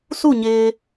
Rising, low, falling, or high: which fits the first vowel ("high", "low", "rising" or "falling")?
falling